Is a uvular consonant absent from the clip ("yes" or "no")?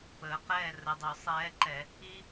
no